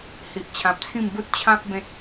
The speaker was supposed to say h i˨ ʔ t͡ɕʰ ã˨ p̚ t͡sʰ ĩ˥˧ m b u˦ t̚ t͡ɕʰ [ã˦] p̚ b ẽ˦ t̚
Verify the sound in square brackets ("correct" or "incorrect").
correct